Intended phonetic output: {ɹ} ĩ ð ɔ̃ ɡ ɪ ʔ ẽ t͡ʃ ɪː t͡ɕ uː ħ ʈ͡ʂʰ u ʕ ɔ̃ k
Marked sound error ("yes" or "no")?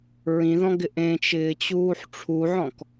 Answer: no